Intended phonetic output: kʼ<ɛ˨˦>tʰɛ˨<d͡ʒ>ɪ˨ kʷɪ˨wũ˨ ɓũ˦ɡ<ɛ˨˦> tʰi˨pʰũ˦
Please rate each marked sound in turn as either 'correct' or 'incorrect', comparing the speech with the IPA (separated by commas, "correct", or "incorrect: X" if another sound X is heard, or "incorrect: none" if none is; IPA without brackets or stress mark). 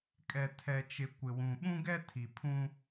incorrect: ɛ˨, incorrect: t͡ʃ, incorrect: ɛ˦